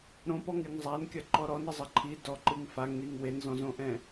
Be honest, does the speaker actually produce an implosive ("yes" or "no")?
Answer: no